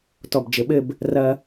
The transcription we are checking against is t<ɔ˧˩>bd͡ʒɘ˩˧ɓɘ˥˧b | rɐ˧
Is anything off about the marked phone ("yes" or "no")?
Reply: no